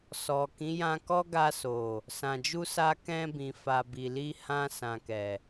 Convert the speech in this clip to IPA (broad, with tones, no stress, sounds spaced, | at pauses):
s ɔ˨ k ĩ˨˦ j ã˧ k ɔ˦ ɡ a˧ s o˨ | s ã˨ d͡ʒ u˧ s a˧ k ɛ̃˧ b ĩ˨ f a˨ b i˨ l i˧ h ã˧ s ã˨ k ɛ˨